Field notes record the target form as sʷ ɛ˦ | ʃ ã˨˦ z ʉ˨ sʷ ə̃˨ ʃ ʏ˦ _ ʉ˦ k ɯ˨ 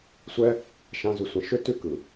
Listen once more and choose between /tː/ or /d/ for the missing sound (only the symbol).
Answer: tː